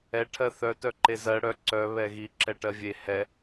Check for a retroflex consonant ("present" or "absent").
present